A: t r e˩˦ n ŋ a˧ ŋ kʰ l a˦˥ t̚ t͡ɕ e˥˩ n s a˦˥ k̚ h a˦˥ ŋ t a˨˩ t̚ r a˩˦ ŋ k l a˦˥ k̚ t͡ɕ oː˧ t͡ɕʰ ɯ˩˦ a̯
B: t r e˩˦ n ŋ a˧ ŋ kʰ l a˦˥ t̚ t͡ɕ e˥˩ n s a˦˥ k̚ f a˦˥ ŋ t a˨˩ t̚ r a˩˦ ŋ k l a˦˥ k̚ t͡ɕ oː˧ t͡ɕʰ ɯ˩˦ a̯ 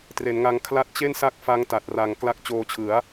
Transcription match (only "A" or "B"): B